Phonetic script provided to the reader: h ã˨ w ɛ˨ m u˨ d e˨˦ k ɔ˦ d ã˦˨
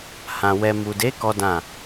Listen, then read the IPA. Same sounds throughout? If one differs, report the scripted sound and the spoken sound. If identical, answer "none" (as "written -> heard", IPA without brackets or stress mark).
none